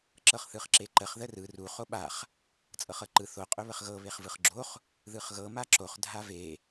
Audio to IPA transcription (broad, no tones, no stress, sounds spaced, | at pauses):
ǁ ɤ χ θ ɯ χ ǁ e ǃ ə χ ð ə r ɯ r u χ o ɓ a χ | t͡sʼ ɤ χ ɤ ǃ ɯ θ o qʼ ɵ β ə χ ɣ ɤ β e χ v ɯ χ ɡ͡ǁ o χ | ð ɯ χ ɣ ɤ m a ǁ o χ dʱ a v e